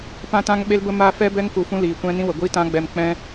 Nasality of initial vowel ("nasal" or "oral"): nasal